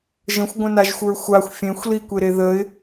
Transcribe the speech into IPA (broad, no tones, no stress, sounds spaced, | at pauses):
ʒ ə̃ xʷ ɡʷ ə̃ n a ʒ xʷ ə˞ xʷ a xʷ fʲ ẽ xʷ l i kʷ e ɾ e ð ə ɪ̯